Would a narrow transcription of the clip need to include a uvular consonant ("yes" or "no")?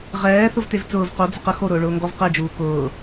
yes